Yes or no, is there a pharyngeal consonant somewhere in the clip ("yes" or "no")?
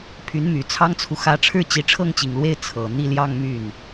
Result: no